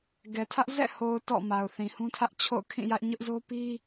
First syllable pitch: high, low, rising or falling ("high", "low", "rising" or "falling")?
low